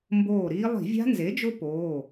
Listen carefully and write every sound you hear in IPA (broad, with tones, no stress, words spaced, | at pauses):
mboː˧˩ ɾiː˦˥ lˠi̤˧˩˧vʲa̤˦˥nze˩˥d͡ʒʊ˦˥ poː˩˧˩